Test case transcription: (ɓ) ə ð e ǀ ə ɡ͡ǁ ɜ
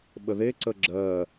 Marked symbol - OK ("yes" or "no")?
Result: yes